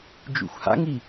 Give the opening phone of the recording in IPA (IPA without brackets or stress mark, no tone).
d͡ʒ